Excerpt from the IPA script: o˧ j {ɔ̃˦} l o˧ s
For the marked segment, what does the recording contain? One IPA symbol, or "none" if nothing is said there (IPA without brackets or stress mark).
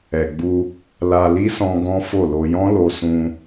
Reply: ɔ̃˦